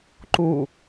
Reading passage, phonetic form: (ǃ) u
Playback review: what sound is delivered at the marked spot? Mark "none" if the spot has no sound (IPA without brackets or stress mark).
ǃ